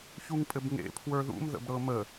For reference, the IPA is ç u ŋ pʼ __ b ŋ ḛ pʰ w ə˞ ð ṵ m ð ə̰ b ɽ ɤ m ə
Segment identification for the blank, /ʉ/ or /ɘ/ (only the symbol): ɘ